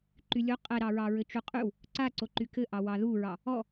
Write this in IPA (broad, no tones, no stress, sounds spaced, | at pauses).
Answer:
ǃ y lʲ o qʼ ɛ ɾ ɑ ɹ ɑ ɹ ɘ t͡ʃ u qʼ y w | ǀ a ǀ o ǃ y k ɘ ʔ ɑ w ɑ ð u ɹ ɑ | ɔ